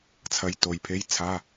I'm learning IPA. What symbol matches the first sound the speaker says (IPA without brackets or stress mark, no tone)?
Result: t͡sʰ